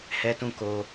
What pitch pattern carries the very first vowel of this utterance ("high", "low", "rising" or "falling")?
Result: high